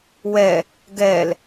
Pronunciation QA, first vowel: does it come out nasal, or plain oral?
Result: oral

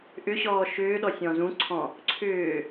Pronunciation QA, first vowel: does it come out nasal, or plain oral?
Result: oral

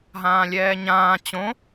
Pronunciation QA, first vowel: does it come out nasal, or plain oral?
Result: nasal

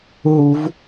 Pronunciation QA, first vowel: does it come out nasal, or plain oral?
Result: oral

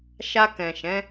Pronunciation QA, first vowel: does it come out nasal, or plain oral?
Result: oral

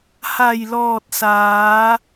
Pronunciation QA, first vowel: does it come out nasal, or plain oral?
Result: oral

